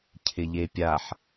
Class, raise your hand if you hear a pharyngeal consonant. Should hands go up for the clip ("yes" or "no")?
yes